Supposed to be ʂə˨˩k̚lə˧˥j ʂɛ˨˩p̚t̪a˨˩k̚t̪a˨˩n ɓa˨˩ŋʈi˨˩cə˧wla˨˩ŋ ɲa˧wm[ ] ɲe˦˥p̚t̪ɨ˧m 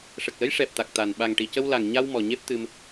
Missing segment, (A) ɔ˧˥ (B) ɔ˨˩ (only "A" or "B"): B